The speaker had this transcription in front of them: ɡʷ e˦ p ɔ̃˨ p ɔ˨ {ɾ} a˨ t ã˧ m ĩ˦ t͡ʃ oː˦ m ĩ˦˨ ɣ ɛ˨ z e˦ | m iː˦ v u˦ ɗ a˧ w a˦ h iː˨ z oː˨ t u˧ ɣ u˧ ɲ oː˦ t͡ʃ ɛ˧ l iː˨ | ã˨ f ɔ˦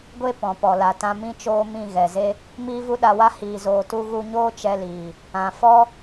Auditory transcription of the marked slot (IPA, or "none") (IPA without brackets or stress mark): l